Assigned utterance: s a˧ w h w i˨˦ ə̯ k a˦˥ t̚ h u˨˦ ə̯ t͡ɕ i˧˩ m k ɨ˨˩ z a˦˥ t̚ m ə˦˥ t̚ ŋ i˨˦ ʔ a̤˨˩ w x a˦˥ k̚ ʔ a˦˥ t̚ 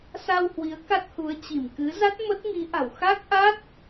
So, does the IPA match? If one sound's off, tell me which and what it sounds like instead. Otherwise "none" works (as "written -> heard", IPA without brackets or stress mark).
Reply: ɨ˨˩ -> ɨ˨˦